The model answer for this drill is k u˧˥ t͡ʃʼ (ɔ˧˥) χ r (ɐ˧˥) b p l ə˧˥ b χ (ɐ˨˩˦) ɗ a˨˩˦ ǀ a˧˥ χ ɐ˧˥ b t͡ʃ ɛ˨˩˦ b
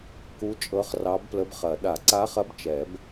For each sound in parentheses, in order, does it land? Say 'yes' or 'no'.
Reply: no, no, yes

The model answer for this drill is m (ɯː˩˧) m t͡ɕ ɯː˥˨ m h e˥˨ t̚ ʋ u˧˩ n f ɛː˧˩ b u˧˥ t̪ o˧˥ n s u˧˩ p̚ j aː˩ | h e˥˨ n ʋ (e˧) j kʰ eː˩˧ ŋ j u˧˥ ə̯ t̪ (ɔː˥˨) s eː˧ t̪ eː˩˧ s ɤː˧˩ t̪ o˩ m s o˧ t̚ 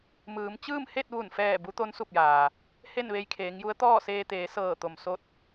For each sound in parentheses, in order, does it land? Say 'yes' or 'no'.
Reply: yes, yes, yes

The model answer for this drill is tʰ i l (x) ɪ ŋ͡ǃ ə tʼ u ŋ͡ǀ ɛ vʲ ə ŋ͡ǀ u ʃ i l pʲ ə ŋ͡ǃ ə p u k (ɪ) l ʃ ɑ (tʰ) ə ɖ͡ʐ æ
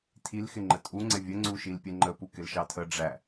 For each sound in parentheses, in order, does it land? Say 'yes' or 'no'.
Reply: yes, yes, yes

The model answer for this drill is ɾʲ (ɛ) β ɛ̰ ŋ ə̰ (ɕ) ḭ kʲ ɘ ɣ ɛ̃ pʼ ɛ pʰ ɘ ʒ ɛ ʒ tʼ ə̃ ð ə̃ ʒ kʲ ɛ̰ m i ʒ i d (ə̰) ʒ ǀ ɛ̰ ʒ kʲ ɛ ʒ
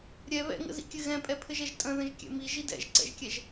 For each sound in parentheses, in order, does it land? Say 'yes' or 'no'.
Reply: yes, no, no

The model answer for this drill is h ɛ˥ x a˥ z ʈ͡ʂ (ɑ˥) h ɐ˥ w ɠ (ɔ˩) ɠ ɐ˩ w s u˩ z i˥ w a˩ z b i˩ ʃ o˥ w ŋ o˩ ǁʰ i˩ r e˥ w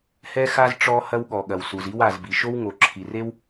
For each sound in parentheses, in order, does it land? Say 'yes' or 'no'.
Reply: no, yes

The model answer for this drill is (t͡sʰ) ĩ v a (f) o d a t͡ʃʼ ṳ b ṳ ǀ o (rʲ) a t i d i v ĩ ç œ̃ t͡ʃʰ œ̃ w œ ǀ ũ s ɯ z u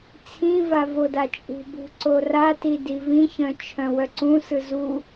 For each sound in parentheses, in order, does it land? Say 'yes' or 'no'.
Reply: yes, no, no

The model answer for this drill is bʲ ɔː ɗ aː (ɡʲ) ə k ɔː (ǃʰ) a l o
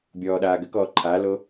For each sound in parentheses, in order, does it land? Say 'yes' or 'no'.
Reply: no, yes

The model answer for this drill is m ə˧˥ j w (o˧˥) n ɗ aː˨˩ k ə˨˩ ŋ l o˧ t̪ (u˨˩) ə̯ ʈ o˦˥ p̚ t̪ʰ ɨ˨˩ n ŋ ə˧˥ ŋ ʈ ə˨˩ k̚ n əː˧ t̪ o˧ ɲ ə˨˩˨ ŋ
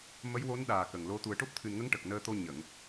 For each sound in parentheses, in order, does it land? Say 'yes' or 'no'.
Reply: yes, yes

